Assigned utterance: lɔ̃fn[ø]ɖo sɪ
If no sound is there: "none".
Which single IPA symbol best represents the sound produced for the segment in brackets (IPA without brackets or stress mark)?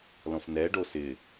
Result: ɛ